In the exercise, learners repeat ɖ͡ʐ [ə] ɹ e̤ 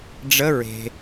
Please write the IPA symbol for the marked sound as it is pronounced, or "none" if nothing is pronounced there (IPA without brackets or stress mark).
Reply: ə